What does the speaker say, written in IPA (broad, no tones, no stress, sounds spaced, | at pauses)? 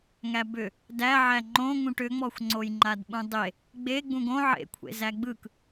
ŋ æ b ʏ | d æ ʕ æ ŋ͡ǃ õ ŋ ũ ʈ ʏ ŋ͡m ɔ xʷ ŋ͡ǀ o j ŋ͡ǃ a d ɓ ũ dˤ e | ɡ͡b e ɡ͡b ũ ɡ õ ʕ ḛ kʷʰ ḛ z æ ɡ͡b ɯ k